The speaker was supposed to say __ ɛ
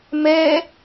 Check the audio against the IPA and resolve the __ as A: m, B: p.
A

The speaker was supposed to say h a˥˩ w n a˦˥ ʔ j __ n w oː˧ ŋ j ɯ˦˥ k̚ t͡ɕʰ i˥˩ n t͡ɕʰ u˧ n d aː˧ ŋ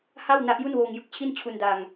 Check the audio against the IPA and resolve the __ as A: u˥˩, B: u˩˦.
A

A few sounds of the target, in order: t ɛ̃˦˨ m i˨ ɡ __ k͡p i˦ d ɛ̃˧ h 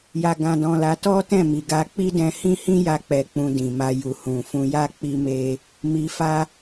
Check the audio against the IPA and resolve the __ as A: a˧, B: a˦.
A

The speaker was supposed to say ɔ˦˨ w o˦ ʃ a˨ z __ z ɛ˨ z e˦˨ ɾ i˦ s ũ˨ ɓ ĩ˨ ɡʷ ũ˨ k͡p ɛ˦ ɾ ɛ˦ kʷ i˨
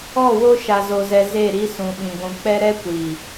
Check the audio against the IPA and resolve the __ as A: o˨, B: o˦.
A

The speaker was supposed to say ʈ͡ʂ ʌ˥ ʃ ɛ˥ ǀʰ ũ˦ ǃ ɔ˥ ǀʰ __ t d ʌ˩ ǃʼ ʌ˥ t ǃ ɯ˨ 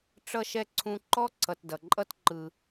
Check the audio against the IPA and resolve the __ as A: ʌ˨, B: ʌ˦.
A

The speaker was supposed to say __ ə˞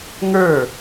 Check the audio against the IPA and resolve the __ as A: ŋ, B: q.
A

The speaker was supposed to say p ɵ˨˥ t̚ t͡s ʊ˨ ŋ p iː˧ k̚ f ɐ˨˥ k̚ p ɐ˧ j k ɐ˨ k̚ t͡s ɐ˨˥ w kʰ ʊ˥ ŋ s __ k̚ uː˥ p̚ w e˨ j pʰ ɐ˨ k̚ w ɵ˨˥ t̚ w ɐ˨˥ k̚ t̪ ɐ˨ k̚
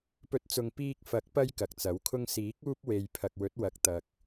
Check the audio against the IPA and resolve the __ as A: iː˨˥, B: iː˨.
A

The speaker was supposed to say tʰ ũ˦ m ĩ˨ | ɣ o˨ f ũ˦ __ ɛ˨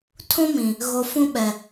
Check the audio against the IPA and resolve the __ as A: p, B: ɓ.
B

